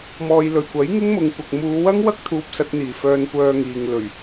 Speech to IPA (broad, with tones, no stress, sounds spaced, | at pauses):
m ɔː˨ j l ɵ˨˩ ɥ kʷ ɐ˨˥ j ŋ ɪ˥ ŋ m ʊ˨˧ ŋ kʷ ɐ˨ k̚ m uː˨˧ w ɐ˥ ŋ w ɐ˥ k̚ t̪ʰ uː˧ p̚ s ɐ˧ t̚ n̪ iː˨˩ f œː˧ n kʷ œː˧ ŋ iː˨ ŋ l ɵ˨˩ ɥ